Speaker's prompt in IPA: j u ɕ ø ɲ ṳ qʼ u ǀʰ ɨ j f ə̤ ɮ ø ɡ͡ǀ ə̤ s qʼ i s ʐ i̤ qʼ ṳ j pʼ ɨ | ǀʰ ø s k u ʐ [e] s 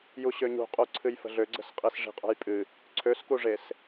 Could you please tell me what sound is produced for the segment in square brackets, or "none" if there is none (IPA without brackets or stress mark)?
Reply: e